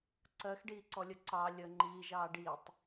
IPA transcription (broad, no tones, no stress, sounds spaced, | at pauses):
ǀ ɜ x ɖ iː ǀ ɔ lʲ ə ǀ ɑ lʲ ə ŋ͡ǃ iː ʒ ɑː ɖ i tˤ